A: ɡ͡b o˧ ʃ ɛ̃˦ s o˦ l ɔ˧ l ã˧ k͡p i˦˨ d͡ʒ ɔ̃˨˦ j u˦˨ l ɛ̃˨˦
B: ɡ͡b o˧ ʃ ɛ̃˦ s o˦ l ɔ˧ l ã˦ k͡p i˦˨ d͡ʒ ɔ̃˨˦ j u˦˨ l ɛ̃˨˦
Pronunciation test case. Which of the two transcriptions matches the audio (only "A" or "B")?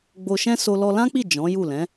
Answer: B